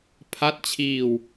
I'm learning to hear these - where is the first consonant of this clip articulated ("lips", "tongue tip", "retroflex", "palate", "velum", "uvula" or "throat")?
lips